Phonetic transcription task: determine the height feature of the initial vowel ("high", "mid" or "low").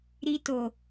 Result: high